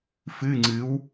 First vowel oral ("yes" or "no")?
yes